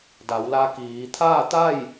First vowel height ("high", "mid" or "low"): low